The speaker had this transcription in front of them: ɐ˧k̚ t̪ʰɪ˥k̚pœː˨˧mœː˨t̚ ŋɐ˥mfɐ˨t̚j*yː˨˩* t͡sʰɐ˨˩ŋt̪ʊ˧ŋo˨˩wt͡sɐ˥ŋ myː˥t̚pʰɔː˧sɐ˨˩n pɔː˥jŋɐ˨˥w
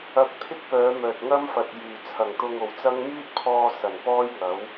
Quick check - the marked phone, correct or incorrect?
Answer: correct